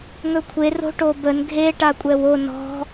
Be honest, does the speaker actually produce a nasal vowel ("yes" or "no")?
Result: no